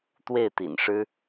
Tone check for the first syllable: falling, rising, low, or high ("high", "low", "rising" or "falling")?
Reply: falling